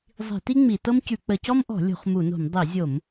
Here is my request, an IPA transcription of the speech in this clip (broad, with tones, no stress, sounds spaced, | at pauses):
zˤ i̤˧˩˧ t i˥ ŋ͡m i˧˩˧ t ɤ˥ m c ʉ˧˩˧ k͡p ə˧˩˧ c ɔ˥ m ʔ ɔ̤˧˩˧ lʲ o̤˧˩˧ χ m u˧˩˧ n o̤˧˩˧ m dˤ i˧˩˧ zʲ o˧˩˧ m